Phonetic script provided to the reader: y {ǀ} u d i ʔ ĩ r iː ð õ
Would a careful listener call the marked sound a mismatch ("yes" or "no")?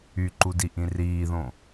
yes